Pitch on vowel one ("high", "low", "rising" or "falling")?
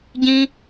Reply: high